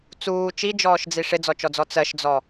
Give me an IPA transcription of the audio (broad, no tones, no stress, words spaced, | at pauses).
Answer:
t͡suː t͡ʃid͡ʒɔːʃd͡zi ʂɪd͡zɔt͡ʃɔd͡zɔ t͡sɜʃd͡zɔ